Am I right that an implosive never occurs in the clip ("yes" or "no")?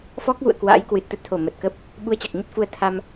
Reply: no